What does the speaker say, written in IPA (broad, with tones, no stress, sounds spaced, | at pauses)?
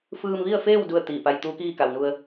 f ɯː˧ m ʋ i˥˨ ə̯ f eː˥˨ w d u˥˨ ə̯ t̪ iː˧˩ p a˧ j t̪ uː˧˥ k iː˥˨ k a˩ w n u˧ ə̯